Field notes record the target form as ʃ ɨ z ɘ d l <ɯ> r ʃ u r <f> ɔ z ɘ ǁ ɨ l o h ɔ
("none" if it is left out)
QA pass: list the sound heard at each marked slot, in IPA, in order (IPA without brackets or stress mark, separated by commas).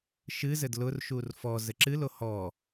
ʊ, f